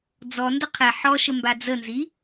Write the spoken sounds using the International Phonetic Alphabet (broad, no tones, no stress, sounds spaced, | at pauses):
d͡z ɔ n d ə qʰ ɛ ħ ɔ ʃ ə m b a d͡z ə n z i